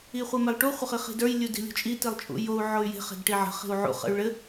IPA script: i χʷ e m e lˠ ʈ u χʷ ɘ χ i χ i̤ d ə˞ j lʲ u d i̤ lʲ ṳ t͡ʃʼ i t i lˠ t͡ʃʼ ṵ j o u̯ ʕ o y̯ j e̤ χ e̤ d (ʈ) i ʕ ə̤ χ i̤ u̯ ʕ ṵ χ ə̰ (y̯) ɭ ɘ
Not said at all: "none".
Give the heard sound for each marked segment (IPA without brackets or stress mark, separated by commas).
ʈ, y̯